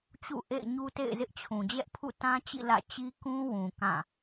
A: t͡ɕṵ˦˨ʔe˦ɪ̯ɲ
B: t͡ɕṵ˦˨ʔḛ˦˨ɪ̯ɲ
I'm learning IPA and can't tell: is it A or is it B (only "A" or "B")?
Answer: B